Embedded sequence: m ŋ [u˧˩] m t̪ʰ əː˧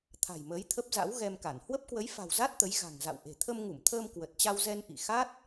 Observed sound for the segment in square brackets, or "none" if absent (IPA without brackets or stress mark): u˧˩